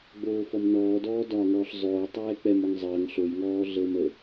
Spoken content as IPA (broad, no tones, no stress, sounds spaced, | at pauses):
ɡ͡b oː f ɔ m n ɔː d ɔː d ɒː ŋ ɔː ɬ zˤ oː tˤ ɛː k͡p ɛ m ɔ ŋ zˤ əː ŋ ɬ o j ŋ ɔː ɮ əː m ə